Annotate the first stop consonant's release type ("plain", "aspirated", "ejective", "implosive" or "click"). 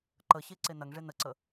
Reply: click